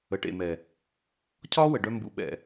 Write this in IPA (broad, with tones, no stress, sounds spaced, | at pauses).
ə˨ ʈ ḛ˨ m ɛ˨ | cʰ ɒː˦ w ə˨ ɖ œ˧ m b ṵ˧ ɓ ɛ̰˨